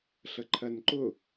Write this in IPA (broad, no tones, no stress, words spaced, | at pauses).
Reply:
ɬəǃʰɜnǃʊ